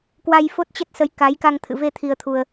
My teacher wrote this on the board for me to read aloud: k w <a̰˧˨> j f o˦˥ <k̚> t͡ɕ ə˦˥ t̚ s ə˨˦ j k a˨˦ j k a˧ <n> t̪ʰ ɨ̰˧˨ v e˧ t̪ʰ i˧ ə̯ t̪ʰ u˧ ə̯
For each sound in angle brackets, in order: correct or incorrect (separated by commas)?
incorrect, incorrect, incorrect